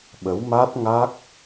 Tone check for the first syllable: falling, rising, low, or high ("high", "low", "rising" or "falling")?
rising